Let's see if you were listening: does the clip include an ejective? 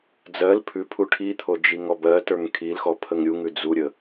no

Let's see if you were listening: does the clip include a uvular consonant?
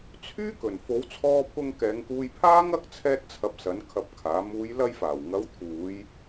no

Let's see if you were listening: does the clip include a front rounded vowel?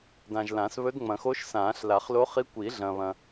no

